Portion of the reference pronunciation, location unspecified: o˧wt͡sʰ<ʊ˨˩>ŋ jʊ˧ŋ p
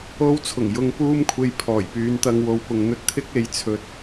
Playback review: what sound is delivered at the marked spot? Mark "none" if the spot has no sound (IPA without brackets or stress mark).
ʊ˨˩